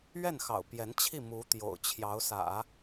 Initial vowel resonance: oral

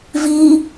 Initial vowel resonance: oral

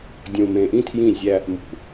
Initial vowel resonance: nasal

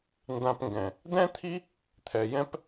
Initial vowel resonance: nasal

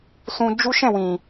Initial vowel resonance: nasal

